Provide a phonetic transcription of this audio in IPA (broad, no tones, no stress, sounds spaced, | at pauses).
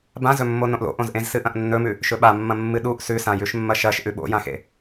b ã z ɵ mː o n õ ʔ l o̰ ʔ õ z ʔ ẽ z s ɨ ʔ ɐ̃ ʔ nː ɵ m ʉ | ʃ ɵ ɓ a mː ɐ̃ mː ɨ ɗ u ʔ s ʉ s ã j ʉ ʃ mː ɐ ʃ ɐ ʃ ʔ ʉ ɓ o̰ j ã x ḛ